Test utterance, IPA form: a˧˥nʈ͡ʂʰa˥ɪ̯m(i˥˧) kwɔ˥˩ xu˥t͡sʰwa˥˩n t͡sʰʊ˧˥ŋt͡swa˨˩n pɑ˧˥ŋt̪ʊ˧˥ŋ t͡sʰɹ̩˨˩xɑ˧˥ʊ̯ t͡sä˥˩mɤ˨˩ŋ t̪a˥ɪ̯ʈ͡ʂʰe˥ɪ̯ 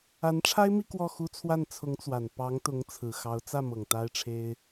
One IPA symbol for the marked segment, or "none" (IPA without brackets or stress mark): i˥˧